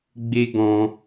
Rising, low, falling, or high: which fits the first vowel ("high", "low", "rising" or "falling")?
high